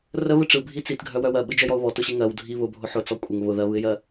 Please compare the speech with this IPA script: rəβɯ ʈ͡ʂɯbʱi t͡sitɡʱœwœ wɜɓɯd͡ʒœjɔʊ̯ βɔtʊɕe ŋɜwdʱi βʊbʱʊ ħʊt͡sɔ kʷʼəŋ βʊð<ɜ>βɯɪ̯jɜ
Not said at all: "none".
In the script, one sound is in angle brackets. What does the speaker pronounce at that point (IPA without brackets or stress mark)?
ɜ